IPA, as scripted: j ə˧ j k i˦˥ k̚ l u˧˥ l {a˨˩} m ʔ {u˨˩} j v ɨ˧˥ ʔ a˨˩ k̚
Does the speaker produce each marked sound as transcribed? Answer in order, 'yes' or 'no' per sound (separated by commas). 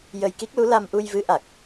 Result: no, no